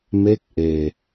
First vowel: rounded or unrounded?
unrounded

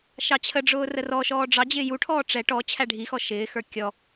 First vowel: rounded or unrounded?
unrounded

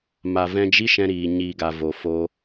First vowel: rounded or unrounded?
unrounded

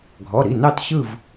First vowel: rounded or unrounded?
rounded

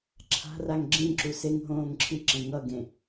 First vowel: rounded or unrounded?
unrounded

